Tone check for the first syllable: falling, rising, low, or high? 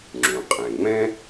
low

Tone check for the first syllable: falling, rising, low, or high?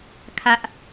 high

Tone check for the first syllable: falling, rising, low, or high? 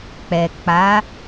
low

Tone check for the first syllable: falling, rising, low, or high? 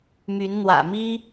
rising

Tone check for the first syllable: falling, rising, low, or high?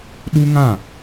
high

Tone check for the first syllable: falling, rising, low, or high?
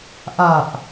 low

